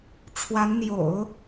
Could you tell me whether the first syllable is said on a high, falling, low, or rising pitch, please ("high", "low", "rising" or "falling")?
rising